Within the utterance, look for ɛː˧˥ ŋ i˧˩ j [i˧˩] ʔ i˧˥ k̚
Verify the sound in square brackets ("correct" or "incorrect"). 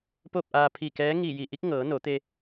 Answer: correct